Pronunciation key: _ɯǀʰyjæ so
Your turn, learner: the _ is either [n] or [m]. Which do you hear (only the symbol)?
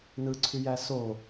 n